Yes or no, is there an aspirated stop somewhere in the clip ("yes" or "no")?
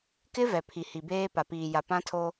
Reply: yes